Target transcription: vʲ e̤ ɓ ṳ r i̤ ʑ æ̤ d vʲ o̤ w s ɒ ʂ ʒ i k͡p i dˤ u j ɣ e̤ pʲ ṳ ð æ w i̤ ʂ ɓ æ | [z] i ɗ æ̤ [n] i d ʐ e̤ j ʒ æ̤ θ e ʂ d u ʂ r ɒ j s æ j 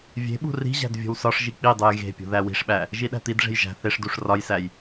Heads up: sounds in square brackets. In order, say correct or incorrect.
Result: incorrect: ʒ, incorrect: t̪

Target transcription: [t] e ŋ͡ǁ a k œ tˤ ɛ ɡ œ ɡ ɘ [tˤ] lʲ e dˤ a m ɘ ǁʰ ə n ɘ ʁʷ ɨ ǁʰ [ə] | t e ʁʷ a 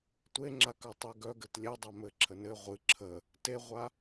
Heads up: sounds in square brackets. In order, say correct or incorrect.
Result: incorrect: tʷ, incorrect: t, correct

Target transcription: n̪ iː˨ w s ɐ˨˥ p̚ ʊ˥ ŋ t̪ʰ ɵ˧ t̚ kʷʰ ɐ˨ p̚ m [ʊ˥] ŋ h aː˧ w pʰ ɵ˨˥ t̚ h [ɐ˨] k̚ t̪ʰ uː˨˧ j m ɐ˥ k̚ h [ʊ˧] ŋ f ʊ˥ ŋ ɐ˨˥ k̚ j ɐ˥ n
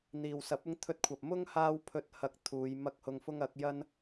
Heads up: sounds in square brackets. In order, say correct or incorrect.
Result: correct, correct, correct

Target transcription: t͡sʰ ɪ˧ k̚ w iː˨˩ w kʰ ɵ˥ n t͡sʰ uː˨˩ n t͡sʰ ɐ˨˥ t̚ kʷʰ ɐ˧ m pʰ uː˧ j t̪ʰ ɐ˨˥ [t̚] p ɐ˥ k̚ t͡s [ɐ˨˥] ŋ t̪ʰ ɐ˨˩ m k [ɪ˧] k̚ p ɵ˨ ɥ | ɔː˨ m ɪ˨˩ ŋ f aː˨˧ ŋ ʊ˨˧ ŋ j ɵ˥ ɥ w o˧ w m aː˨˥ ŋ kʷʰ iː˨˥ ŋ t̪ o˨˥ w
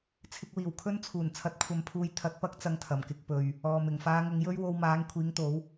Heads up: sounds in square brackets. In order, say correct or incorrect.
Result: correct, incorrect: ɐ˧, correct

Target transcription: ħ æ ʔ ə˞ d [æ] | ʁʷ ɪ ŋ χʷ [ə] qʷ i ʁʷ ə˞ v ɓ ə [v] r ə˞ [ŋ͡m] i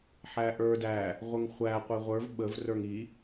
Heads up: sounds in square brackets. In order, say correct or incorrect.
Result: correct, incorrect: æ, correct, incorrect: ŋ

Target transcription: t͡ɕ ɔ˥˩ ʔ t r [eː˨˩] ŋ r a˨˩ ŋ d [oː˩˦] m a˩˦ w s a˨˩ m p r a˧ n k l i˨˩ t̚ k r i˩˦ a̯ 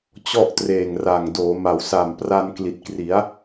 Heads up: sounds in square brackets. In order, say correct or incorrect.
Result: correct, correct

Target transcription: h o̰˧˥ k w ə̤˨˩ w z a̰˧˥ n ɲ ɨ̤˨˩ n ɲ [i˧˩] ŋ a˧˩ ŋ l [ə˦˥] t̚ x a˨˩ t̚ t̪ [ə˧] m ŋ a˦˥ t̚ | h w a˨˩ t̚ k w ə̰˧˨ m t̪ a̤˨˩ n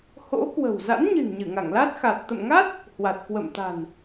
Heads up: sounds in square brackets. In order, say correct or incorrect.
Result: incorrect: ɨ˧˩, incorrect: a˦˥, incorrect: ə̰˧˨

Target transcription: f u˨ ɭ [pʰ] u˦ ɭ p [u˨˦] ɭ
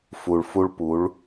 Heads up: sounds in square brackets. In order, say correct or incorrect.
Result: incorrect: f, correct

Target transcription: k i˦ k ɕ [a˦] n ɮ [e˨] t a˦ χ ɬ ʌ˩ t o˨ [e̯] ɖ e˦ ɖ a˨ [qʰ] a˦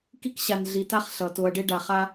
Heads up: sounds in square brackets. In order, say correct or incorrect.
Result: incorrect: a˨, incorrect: i˨, incorrect: ɐ̯, incorrect: χ

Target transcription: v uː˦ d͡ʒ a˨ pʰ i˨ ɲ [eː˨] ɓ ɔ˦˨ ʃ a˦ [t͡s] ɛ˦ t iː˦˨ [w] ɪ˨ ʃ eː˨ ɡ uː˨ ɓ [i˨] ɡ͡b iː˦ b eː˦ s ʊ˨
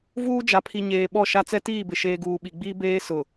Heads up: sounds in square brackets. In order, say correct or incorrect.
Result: correct, correct, incorrect: b, correct

